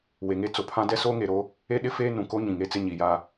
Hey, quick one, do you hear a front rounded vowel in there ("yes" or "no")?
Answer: no